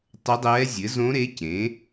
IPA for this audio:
tˤ ɘ˧˥ dˤ ɛː˧˥ zʲ ɘ˩˥ z õ˧˥ ɾ e˧˥ c ẽ˩˥

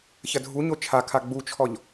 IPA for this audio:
ç ɐ dʱ u ɲ o t͡ʃʰ a kʰ a ɡ͡b u t͡ʃʰ ɔ ʎ

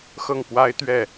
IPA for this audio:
x ɤ˥˩ ŋ p w a˥ ɪ̯ t̪ ɥ ɛ˥˩

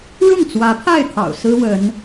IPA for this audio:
ɻ ʊ˥˩ ŋ t͡s w ä˧˥ pʰ a˥˩ ɪ̯ t̪ʰ ɑ̰˨˩ ʊ̯ s ɹ̩˥ w ə˧˥ n

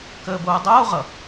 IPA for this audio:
k əː b oː dˤ oː ʁ ʌ

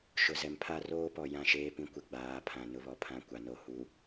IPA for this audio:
ʃ ʊ˨ z ɛ˨ m pʰ a˦ r oː˦ p ɔ˨ j ã˦˨ ʃ eː˦ p ĩ˦ kʷ ɪ˨ ɡ͡b aː˨˦ pʰ ã˨ n ʊ˦ β ɔ˨ pʰ ã˦˨ kʷ a˨ n o˦˨ h u˨

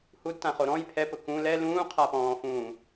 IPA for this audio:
h u d t ã χ o ɾ ɔ̃ j pʰ ɛ p ʊ k ũ l ɛ l ũː qʰ a p ɔ̃ː f ũː

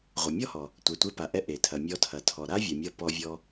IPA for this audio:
ʁʷ ʌ˩ mʲ ɔ˥ h ɔ˩ | tʷ ɛ˩ tʷ e˧ p a˩ ʔ ɛ˧ ʔ e˩ tʰ ɐ˩ mʲ ɔ˧ tʰ ɐ˩ tʰ ɔ˩ ɾ a˥ vʲ ɐ˩ mʲ ʌ˧ p ɔ˧ vʲ ɔ˧

